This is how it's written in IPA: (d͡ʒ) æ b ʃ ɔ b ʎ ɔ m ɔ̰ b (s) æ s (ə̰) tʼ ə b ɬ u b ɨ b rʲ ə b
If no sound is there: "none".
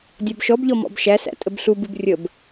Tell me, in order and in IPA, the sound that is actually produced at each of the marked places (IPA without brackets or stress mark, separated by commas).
dʲ, ʃ, æ̰